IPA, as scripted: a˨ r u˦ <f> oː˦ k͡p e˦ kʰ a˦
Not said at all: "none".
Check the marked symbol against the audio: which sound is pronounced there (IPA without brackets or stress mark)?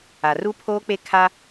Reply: pʰ